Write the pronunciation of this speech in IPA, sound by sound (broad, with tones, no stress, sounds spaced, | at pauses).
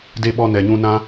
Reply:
d e˦ ɓ ɔ˦ n ɛ˨ ɲ ũ˧ n ã˦